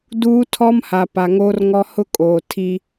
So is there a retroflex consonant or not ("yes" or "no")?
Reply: no